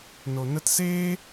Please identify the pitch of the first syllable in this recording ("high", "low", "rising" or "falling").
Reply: low